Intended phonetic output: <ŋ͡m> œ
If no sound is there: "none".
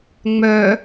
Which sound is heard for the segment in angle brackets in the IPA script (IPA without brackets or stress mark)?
ŋ͡m